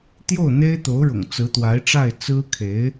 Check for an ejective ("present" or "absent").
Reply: absent